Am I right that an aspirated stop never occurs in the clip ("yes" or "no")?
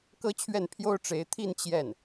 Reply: no